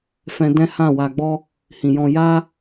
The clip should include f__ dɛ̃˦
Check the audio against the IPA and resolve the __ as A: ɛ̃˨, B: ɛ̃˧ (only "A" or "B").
B